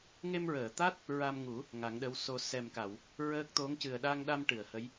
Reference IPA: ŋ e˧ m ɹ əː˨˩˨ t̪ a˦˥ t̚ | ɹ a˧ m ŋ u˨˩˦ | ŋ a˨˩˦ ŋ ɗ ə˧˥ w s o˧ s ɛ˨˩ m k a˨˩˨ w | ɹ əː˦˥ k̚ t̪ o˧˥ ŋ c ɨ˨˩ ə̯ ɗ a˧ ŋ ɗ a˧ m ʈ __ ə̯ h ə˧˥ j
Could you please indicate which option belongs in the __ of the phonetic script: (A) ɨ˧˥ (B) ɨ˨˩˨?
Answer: B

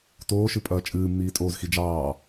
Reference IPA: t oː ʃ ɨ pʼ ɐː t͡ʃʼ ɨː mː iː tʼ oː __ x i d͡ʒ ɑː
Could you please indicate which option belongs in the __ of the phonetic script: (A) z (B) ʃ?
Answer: A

